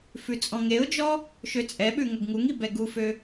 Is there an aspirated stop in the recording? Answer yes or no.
no